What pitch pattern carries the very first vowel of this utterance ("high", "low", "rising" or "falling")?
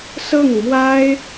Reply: falling